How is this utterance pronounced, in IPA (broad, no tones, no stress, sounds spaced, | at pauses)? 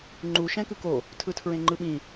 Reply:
ŋ͡ǃ u ʃ ɛ̃ k ɯ k o | tʰ ɯ tʰ ɹ ẽ ŋ͡ǃ ɯ ɓ ĩ